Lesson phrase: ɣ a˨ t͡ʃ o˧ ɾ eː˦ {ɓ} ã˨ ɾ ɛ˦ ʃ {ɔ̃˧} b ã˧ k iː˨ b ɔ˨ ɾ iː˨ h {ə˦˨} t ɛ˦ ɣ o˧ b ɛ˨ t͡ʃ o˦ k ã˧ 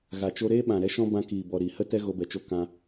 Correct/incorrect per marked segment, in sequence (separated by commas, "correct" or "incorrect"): correct, incorrect, incorrect